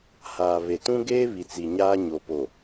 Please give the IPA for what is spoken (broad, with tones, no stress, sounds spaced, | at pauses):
h aː˨ β e˨ t ũ˦ ɡ eː˦ β i˨ t͡s i˨ ɲ aː˦ ɲ o˨ p o˨